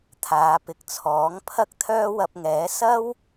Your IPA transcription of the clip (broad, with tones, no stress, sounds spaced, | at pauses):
t̪ʰ aː˨˧ p ɪ˨˥ k̚ t͡sʰ ɔː˨˥ ŋ pʰ ɐ˥ k̚ t̪ʰ œː˥ w ɐ˧ p̚ ŋ ɛː˨˥ s ɐ˥ w